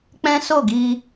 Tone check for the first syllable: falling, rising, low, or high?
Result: high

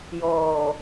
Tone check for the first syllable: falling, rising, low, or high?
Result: low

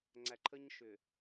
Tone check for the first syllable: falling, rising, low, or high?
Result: low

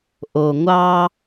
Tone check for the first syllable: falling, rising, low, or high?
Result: low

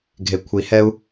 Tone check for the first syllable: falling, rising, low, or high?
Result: low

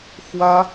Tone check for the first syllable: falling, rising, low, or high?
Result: high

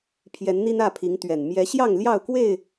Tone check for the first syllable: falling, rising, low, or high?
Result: rising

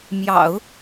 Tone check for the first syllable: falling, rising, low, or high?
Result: low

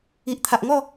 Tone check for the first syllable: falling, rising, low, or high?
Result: low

